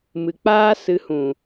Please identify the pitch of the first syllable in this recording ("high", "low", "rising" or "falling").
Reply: low